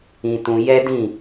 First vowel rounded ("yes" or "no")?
no